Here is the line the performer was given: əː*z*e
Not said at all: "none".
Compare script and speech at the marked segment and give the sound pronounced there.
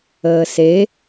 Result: s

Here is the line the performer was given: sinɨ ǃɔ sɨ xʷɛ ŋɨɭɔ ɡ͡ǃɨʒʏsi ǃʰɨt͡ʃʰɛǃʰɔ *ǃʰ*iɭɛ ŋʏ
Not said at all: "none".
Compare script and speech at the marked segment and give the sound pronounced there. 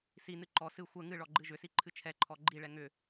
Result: ɡ͡ǃ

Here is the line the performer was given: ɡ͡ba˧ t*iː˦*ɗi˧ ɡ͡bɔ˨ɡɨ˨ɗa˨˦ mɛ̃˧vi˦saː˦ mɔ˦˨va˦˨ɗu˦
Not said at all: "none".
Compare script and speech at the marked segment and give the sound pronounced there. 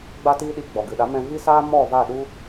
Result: iː˦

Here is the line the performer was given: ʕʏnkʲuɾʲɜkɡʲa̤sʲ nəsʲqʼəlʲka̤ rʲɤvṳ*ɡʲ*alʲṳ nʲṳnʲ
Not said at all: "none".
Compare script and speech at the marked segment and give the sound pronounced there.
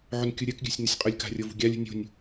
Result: ɡʲ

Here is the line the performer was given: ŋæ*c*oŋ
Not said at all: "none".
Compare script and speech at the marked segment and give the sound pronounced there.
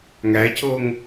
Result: c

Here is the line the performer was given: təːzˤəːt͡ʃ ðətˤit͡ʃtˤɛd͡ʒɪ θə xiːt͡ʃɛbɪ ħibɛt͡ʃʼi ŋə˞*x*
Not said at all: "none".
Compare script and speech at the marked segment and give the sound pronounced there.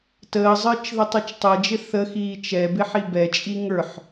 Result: ħ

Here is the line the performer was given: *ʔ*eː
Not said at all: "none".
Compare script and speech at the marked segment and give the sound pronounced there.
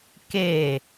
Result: k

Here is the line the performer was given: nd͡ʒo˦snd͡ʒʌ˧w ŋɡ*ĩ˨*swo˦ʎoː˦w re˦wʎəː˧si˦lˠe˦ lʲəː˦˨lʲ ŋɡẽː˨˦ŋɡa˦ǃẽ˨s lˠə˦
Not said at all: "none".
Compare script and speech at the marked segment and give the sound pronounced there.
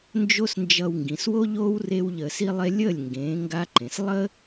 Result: ĩ˨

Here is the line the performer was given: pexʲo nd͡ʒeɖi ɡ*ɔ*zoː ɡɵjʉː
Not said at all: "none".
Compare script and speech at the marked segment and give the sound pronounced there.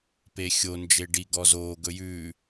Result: ɔ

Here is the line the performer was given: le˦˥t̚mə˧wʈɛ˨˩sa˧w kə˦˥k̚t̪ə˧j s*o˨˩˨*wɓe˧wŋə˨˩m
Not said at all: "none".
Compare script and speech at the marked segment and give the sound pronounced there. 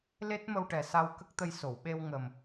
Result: o˨˩˨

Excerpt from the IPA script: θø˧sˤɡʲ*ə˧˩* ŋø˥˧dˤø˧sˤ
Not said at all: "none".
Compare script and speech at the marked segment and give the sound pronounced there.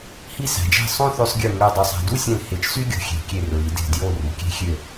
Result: ɯ˧˩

